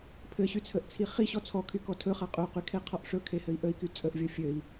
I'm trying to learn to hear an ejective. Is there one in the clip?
yes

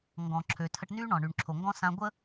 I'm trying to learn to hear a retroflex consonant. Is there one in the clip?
yes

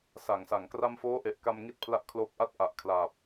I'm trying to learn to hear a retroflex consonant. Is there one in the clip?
no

